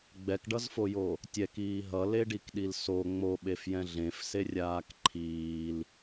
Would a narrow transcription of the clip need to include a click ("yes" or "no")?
yes